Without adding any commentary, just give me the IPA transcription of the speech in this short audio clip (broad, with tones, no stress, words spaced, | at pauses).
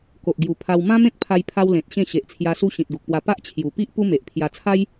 ko˨ʔɡju˨˩pʰa˧w mã˦mẽ˦k̚pʰa˧j pʰa˦wlẽ˨t̚ ɕẽ˥˧ɕe˨ʔt͡sʰja˧su˦ ɕĩ˨t̚ɡu˨k̚pwa˧ pa˦ʔt͡ɕʰju˨˩ pi˦ʔ pu˦me˨ʔpʰja˧ t͡sʰa˦j